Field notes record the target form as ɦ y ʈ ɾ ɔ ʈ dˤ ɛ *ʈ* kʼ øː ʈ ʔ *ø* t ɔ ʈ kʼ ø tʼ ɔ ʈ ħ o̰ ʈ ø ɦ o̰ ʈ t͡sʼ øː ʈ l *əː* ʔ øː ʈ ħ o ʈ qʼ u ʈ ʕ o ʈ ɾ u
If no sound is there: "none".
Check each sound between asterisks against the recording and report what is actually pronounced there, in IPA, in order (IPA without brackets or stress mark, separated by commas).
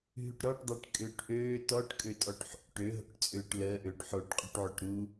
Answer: ʈ, øː, əː